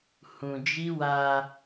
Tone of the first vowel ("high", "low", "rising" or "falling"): low